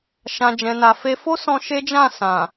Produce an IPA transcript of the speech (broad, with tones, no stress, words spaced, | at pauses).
ʃã˨d͡ʒɛ̃˨na˨fe˧ fo˦sɔ̃˧ ʃe˦d͡ʒã˦˨ sã˨